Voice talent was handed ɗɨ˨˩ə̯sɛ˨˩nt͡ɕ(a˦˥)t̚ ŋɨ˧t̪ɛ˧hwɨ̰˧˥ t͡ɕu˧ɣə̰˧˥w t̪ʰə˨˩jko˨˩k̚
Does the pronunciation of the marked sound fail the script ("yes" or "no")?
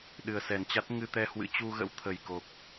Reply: no